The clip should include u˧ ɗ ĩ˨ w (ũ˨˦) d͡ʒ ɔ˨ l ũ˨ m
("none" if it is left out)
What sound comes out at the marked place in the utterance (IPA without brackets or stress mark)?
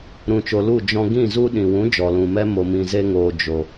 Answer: ũ˨˦